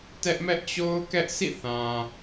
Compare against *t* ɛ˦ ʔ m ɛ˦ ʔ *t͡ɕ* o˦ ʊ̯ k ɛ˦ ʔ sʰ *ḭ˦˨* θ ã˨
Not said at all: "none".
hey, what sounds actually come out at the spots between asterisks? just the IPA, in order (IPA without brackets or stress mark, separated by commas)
t, t͡ɕ, ḭ˦˨